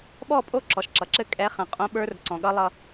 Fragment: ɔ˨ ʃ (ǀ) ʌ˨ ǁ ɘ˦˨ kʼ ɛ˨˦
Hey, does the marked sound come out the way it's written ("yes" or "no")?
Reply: no